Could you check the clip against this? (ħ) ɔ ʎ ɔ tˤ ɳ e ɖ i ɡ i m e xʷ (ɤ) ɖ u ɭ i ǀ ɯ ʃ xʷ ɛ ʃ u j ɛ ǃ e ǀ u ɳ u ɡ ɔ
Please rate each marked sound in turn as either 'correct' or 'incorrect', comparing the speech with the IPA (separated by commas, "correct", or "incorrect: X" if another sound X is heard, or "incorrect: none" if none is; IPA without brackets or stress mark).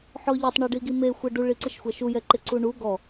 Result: correct, correct